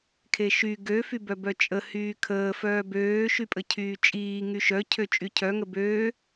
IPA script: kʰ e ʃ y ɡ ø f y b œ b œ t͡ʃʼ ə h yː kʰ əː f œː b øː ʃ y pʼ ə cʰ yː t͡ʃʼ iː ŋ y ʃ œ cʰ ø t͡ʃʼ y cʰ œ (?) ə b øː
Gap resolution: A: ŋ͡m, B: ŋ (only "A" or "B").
B